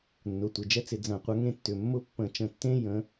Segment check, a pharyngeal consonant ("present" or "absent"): absent